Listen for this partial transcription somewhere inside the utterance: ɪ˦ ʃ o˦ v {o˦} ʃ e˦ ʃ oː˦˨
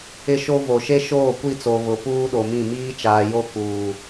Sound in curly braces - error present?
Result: yes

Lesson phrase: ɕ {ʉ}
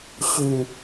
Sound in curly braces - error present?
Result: no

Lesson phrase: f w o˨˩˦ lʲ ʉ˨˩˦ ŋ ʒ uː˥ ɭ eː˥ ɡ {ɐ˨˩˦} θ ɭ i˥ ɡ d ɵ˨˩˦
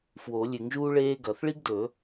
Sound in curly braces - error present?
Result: no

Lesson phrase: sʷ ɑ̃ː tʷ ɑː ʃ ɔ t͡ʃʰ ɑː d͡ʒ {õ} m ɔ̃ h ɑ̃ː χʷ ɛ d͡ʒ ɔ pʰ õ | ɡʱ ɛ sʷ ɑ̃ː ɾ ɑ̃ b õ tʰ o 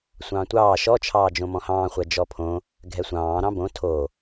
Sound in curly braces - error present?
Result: no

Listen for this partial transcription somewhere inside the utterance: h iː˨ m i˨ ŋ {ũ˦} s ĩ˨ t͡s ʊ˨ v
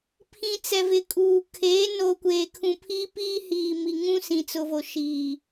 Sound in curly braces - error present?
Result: no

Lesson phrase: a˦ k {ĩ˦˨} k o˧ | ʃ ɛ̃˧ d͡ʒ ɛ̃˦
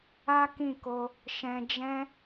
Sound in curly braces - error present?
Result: no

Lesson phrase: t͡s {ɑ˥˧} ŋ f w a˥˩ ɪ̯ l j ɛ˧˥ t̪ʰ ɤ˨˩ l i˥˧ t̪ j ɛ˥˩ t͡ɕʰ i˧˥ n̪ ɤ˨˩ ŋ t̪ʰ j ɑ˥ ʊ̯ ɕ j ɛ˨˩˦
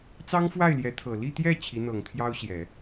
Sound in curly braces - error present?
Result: yes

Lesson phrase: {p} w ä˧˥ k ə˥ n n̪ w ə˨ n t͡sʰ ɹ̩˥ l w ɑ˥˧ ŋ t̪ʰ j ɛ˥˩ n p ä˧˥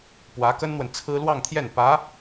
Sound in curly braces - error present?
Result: no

